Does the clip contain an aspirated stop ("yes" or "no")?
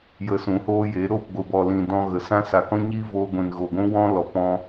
no